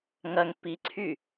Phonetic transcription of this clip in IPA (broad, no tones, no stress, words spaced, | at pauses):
ŋɐŋ piǀʰy